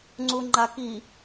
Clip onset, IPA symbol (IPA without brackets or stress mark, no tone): ŋ͡ǀ